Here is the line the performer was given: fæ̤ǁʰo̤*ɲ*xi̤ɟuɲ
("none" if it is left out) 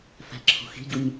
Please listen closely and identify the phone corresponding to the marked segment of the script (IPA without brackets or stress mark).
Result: none